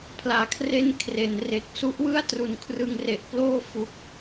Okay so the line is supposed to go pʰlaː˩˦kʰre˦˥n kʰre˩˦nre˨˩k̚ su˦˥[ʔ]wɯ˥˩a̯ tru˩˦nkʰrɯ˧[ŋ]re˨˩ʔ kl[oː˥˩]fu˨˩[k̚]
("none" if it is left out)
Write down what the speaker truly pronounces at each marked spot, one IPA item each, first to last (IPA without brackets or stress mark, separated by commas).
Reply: ʔ, ŋ, oː˥˩, k̚